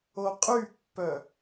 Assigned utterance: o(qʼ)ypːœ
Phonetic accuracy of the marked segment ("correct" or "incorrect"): correct